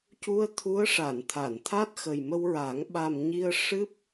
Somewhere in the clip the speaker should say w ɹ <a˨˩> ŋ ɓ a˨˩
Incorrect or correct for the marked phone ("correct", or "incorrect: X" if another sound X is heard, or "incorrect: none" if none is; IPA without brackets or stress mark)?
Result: incorrect: a˨˩˦